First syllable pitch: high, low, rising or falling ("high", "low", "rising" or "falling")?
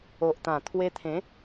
low